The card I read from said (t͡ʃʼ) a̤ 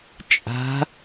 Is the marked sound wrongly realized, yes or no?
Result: no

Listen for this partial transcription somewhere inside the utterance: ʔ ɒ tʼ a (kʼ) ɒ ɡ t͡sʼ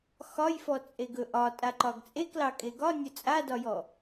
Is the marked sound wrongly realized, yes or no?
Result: yes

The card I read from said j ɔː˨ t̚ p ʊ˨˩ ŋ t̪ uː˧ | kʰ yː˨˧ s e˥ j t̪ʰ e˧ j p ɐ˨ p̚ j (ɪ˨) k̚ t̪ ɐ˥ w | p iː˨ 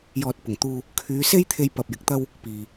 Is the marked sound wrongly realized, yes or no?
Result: no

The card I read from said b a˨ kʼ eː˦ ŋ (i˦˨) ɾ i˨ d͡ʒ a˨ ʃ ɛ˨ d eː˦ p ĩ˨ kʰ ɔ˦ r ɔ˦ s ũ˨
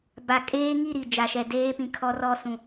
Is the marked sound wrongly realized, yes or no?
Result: no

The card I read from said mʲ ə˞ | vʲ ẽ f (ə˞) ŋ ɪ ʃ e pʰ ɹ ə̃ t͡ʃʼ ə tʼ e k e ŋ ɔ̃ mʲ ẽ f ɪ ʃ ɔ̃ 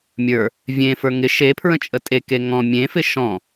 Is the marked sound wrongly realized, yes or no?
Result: no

